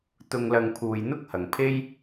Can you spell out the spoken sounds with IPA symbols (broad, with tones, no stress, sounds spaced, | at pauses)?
t̪ ʊ˨ ŋ l ɐ˨ ŋ pʰ uː˨˩ j n̪ ʊ˥ k̚ h ɐ˨˩ ŋ pʰ e˥ j